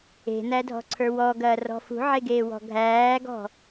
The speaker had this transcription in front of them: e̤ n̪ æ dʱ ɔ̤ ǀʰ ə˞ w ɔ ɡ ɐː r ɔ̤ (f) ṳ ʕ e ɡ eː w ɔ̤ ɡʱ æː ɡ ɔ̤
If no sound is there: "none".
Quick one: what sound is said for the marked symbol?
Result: f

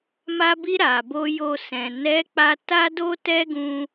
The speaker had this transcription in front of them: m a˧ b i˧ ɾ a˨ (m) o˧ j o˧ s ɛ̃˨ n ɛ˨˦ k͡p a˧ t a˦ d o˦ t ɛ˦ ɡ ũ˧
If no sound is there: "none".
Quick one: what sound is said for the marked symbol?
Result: b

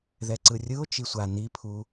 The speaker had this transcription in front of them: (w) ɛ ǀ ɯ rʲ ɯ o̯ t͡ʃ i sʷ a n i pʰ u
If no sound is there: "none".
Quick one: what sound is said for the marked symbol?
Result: ð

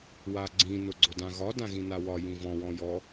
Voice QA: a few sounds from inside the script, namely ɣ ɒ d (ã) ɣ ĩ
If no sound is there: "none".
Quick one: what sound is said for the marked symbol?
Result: ã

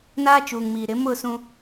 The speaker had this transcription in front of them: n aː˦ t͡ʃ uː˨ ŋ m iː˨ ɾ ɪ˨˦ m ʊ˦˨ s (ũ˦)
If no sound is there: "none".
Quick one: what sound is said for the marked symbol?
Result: ũ˦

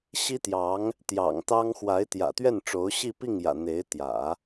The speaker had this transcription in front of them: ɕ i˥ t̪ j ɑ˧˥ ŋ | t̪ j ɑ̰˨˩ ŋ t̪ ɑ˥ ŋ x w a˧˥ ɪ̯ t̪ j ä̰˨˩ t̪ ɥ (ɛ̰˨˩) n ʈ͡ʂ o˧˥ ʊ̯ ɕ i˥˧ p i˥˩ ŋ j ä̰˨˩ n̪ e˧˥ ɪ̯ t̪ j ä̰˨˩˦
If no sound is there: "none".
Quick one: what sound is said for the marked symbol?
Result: ɛ˥˩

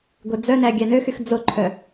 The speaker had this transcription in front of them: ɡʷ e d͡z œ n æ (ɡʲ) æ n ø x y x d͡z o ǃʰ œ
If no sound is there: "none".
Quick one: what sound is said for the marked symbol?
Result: ɡʲ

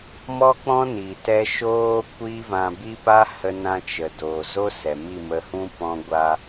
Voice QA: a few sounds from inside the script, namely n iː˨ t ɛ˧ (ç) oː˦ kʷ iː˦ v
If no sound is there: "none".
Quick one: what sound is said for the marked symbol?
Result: ʃ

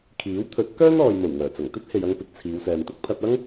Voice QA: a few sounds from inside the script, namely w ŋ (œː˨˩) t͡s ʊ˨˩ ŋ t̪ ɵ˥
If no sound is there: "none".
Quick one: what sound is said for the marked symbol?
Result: œː˨˩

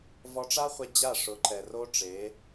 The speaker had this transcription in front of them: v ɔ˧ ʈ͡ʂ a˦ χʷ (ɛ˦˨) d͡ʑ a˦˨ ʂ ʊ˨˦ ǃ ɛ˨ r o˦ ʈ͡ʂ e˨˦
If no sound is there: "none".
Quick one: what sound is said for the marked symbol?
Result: ɛ˧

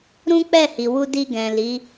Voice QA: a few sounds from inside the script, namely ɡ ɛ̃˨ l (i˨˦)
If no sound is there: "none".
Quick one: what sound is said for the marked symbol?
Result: i˨˦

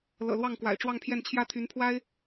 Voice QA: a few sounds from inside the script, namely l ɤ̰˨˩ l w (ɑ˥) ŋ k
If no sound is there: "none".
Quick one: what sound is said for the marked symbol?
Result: ɑ˥˩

